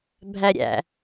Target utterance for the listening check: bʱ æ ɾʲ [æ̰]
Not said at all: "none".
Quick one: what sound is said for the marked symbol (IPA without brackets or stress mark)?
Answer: æ̰